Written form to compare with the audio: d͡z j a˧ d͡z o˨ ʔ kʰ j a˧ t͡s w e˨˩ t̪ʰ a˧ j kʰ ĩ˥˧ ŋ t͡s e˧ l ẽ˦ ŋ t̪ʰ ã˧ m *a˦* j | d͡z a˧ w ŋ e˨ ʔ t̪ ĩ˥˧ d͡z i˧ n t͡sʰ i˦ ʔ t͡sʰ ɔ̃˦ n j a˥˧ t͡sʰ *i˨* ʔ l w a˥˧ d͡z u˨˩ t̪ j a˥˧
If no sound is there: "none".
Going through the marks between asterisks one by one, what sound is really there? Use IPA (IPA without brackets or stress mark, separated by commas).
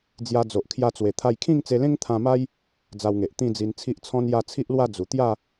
a˦, i˦